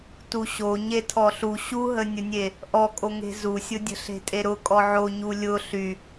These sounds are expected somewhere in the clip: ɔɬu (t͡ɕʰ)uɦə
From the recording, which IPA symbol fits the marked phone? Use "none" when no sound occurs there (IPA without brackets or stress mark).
ɕ